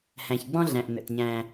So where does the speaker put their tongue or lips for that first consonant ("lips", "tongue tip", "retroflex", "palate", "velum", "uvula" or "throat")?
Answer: throat